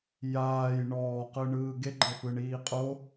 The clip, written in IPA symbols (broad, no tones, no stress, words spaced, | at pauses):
jaːj ɳɔːqɯɳɯː ɡeɡ͡ǃɤfɯɳiː qʼo